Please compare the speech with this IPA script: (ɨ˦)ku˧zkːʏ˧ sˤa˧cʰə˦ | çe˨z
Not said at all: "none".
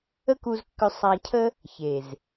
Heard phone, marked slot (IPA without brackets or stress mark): ə˦